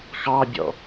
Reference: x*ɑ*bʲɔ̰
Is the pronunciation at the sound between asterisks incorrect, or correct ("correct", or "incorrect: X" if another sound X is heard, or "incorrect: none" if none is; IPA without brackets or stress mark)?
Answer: correct